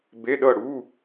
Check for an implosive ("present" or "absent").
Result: present